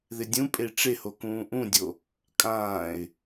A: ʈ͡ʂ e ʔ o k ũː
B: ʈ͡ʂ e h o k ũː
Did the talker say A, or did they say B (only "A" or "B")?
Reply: B